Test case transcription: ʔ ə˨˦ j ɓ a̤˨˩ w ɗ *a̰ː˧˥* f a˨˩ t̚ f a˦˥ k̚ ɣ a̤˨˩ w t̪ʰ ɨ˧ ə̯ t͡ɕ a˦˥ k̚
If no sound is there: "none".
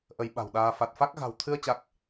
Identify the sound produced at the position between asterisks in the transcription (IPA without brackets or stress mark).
aː˧